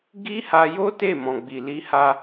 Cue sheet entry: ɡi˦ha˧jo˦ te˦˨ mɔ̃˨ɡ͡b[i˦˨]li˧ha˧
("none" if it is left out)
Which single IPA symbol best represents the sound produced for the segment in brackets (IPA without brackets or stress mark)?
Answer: i˨